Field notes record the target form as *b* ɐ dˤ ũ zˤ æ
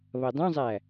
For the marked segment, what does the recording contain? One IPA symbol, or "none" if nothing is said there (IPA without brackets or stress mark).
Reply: β